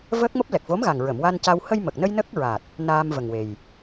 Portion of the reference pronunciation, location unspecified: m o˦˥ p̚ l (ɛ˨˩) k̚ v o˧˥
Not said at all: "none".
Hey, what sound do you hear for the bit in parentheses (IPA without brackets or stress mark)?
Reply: ɛ˨˩